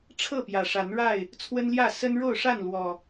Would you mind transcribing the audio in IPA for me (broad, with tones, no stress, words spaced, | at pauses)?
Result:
ʈ͡ʂʰɤ˥˨pjä˨˩ʂa˨˦n ɻa˥˨ɪ̯ | t͡sʰwə˦nljä˥˨ sə˦n ɻo˥˨ʊ̯ʂa˥˨n lwɔ˨˩